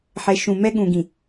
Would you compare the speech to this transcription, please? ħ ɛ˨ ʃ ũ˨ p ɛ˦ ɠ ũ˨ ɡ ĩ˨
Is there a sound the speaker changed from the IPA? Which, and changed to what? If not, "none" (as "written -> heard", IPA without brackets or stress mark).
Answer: p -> m